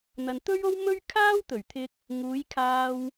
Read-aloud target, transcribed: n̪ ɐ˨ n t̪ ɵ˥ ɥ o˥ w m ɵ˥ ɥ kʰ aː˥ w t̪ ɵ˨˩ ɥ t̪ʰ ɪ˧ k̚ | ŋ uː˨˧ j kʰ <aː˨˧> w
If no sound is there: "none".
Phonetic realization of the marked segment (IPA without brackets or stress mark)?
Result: aː˧